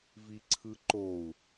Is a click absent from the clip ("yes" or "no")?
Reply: no